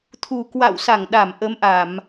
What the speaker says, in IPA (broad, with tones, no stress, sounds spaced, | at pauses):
t̪ʰ u˨˩ k w a̰˧˨ w s a˧˩ ŋ ɗ a˧˩ m ʔ ə˨˦ m ʔ a˧˩˨ m